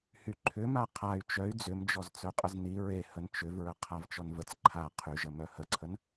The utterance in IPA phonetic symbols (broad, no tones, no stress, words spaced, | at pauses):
hyǃʰʏma qʰay̯ t͡ʃœy̯ d͡zʏmd͡ʒɔz t͡sœqʼəzni ɹe hənt͡ʃʏvɹə qʰavt͡ʃɔnvət͡s ǃʰa qʰyʒə mœhəǀʰən